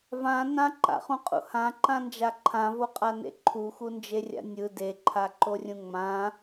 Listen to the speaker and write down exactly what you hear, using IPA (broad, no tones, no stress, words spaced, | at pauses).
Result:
vã nãǃa̰χũqʼṵ hãǃãnd͡ʒa ǃʰãvoqʼanḛ ǃʰuxund͡ʒerʲa̰ nʲɯ deǃʰaǃorʲũ ŋ͡mã